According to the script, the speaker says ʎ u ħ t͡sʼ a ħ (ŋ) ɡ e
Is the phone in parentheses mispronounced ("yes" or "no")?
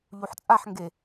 no